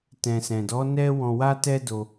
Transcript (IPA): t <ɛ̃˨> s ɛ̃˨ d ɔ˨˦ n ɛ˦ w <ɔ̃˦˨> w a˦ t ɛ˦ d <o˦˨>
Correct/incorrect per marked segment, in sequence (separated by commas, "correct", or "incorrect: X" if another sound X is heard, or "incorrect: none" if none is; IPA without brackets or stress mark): correct, incorrect: ɔ̃˧, incorrect: o˧